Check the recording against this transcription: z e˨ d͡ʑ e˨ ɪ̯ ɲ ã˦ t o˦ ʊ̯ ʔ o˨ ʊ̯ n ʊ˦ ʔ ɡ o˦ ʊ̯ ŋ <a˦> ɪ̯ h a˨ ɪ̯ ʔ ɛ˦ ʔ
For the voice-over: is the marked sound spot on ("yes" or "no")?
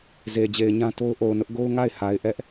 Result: no